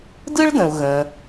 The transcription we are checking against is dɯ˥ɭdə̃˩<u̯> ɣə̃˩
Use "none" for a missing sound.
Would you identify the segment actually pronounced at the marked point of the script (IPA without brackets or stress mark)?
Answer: u̯